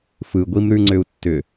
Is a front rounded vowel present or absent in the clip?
present